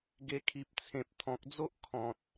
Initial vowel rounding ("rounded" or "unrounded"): unrounded